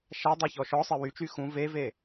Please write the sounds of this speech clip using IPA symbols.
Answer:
ʃ a dˤ a ç ɔ ʃ ɔ sˤ e w y t͡ʃ y x ũ v e v e

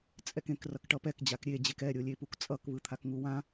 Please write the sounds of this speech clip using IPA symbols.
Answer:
t͡sʼ ɛ k ẽ k r ʌ k ʈ ʌ p ɛ k d͡ʑ a k ɾʲ e d͡ʑ e k ɛ ɾʲ o lʲ e p u k t͡sʼ ʌ k β ɯ t̪ʰ a k ŋ u w ã

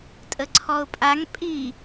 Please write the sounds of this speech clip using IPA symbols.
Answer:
tʼ ə ǀʰ ɔ ʊ̯ pʼ a ŋ pʼ i

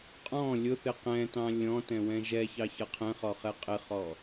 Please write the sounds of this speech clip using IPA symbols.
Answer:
qʼ ɔ̃ lʲ ʊ θ ɪ q ɛ̃ t ɑ̃ lʲ ɔ̃ t ɛ̃ w ɛ̃ ʒ ɛ ç ɑ ç ʌ qʰ ɛ̃ χ ɔ χ ɛ qʼ ɪ χ ɔ

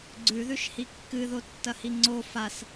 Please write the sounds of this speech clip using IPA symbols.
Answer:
ɡ͡ǀ ʉ ð ʉ ʃ h i kː ɨ ð o tː ɐ h i ŋ͡ǀ o f a s

